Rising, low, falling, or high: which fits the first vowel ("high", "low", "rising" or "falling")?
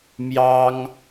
high